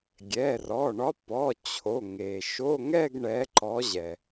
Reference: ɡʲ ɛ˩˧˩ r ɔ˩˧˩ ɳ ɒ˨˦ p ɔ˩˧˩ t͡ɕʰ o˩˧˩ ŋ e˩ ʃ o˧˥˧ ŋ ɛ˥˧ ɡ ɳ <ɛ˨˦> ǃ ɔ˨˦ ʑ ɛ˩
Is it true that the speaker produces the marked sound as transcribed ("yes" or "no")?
yes